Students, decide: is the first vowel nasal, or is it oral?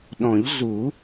nasal